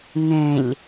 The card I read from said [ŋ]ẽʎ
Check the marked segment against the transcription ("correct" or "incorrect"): correct